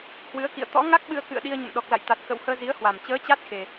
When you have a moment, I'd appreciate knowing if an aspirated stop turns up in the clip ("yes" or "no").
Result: no